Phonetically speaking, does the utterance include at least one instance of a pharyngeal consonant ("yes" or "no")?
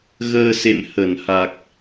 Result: no